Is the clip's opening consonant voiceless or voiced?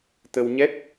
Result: voiceless